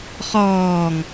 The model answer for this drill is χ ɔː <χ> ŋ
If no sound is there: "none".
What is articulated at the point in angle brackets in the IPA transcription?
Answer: none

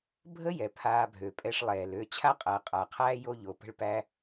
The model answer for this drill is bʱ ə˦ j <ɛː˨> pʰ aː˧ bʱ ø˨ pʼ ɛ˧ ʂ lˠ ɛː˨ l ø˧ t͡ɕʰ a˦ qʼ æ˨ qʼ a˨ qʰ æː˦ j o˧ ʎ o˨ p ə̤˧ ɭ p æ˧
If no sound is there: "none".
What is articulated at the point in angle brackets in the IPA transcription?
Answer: ɛ˨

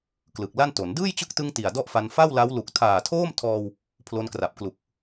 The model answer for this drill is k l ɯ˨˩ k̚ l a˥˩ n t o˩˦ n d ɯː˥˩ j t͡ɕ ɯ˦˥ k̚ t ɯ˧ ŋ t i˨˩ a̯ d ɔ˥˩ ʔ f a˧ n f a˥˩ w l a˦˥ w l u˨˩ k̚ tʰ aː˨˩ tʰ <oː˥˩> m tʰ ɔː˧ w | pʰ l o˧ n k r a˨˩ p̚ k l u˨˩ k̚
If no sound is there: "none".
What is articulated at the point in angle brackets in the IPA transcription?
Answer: oː˥˩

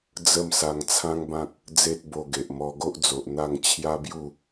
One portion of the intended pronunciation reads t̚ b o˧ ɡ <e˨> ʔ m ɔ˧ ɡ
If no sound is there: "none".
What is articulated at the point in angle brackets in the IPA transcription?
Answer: e˨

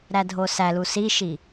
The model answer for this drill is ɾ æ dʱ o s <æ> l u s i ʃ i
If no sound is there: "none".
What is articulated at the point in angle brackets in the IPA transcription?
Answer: æ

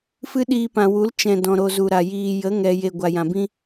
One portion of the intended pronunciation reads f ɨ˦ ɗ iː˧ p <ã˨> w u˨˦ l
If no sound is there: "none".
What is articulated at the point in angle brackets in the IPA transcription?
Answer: ã˨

